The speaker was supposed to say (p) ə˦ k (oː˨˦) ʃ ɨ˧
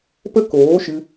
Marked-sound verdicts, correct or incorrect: correct, correct

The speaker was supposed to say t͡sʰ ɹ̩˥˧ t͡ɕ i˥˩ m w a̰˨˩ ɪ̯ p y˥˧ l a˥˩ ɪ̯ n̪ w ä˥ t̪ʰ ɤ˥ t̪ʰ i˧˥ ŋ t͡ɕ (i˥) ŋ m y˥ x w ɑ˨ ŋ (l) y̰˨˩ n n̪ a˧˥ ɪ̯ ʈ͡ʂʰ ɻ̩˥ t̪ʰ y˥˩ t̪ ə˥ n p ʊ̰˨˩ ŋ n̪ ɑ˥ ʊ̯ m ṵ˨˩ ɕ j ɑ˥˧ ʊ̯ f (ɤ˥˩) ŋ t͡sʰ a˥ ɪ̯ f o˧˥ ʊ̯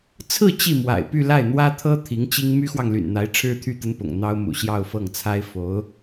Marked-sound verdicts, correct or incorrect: correct, correct, correct

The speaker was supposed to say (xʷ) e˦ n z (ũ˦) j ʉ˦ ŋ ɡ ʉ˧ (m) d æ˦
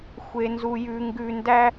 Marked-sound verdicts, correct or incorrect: correct, incorrect: u˦, incorrect: n

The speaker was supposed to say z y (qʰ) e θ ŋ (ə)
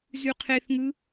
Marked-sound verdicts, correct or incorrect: correct, incorrect: ɯ

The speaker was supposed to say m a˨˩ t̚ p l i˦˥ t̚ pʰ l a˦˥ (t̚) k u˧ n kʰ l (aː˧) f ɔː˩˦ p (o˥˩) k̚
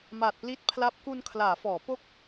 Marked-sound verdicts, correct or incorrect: incorrect: p̚, incorrect: aː˩˦, correct

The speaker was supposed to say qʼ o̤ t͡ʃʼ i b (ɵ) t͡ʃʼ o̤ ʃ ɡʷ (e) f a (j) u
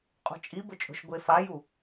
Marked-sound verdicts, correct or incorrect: correct, correct, correct

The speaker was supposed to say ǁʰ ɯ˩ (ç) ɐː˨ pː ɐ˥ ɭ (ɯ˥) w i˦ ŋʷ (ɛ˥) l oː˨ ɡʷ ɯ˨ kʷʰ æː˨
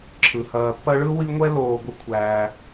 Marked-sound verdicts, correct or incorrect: incorrect: h, correct, correct

